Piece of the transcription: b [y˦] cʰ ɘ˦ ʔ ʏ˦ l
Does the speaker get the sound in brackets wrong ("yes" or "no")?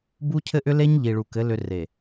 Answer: yes